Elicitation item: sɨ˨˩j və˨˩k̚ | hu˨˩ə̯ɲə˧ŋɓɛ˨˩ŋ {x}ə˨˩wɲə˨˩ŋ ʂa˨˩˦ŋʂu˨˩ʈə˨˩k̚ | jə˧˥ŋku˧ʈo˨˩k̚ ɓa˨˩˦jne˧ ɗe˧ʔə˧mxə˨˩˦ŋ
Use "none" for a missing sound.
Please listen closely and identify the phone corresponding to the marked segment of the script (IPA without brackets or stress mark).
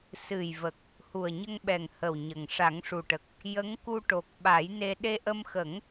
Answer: h